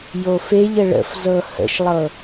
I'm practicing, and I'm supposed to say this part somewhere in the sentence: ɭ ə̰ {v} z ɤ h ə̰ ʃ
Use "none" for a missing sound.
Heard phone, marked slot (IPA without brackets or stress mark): f